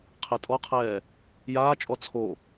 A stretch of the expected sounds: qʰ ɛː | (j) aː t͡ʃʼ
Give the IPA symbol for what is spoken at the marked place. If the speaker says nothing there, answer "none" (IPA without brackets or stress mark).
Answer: j